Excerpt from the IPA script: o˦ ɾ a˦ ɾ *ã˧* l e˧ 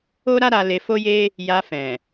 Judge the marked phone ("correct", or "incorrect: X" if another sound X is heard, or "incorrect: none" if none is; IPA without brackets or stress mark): incorrect: a˧